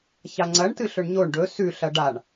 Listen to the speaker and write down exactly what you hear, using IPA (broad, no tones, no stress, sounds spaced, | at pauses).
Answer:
ç a ŋ͡ǀ ɐ ɳ t ɨ ɬ ɵ ɳ ɲ o ɳ ɖ ɵ s ʉ ɬ ɐ ɖ a ɳ